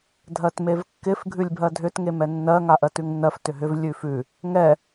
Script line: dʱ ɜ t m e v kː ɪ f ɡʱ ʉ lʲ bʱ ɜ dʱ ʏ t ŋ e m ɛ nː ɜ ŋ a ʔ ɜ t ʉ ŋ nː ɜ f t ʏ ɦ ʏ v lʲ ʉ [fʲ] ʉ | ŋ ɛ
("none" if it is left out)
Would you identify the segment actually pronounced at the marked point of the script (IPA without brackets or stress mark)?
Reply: f